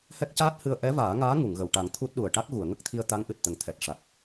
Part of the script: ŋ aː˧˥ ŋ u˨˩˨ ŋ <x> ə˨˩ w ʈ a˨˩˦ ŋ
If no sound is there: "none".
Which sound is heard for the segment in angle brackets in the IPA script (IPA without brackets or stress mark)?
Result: ɣ